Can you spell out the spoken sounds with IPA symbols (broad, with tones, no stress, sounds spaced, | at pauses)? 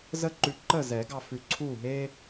z ə˥ ǃ ʉ˧ ǃ ə˥˨ z ɛ˨˩˦ ɡ ɑ˧ f ʉ˧ ǀʰ u˥˨ ɦ e˥